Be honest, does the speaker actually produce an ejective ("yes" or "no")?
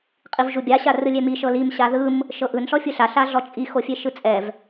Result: yes